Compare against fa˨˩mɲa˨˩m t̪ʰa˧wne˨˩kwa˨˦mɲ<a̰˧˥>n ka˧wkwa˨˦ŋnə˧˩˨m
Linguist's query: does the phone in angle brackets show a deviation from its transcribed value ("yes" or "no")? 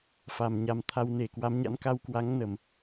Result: no